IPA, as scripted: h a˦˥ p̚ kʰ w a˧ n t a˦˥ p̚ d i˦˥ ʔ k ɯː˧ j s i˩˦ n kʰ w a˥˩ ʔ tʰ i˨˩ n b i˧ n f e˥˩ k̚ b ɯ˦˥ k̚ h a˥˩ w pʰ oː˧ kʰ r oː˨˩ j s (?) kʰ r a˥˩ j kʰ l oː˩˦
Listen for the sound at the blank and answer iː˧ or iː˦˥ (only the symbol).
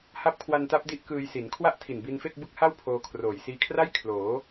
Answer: iː˧